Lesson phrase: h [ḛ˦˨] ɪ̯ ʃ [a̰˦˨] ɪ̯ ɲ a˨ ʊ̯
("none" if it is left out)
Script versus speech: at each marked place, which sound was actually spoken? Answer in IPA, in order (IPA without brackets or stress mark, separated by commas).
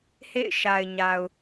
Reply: ḛ˦˨, a˨